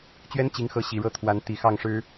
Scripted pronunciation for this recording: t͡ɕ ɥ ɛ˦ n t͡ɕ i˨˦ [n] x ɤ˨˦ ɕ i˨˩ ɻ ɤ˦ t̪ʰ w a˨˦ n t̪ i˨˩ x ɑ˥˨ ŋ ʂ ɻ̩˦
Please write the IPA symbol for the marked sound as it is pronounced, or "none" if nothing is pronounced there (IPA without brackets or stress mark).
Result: ŋ